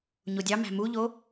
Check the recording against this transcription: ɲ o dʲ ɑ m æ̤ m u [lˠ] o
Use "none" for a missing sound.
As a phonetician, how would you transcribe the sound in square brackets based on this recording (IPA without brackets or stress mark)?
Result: ʎ